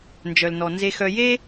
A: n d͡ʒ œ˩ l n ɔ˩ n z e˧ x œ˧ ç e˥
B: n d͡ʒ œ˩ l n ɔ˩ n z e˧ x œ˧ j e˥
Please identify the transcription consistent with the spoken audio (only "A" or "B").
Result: B